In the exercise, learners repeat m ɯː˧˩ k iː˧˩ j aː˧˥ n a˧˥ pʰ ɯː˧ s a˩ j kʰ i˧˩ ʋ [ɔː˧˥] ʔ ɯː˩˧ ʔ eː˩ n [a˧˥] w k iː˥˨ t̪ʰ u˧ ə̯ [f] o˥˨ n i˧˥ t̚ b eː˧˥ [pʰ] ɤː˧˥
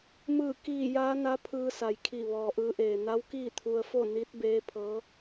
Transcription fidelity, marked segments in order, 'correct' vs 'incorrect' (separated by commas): incorrect, correct, correct, correct